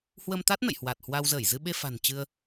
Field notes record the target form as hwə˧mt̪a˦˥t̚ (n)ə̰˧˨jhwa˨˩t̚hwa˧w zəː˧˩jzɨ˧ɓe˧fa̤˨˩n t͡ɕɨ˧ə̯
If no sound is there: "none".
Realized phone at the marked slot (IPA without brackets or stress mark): n